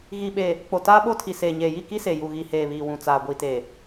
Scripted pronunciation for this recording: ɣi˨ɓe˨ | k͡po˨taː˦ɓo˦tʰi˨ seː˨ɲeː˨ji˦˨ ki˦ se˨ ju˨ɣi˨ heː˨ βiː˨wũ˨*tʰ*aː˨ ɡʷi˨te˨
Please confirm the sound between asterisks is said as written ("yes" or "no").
no